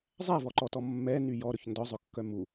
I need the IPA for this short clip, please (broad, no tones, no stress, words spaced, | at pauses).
zˤævɔǃɔtɔ mːɛny jɔɾɵç ndɔzˤɵkːœ mu